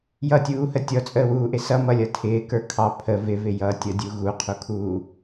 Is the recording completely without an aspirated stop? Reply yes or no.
no